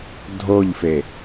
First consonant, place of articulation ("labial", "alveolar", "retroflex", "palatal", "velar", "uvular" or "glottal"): alveolar